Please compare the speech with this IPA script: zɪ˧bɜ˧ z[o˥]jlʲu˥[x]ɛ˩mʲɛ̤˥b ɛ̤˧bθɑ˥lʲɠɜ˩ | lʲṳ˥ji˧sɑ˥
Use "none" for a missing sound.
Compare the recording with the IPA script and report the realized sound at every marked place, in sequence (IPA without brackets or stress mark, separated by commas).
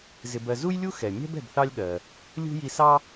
u˥, x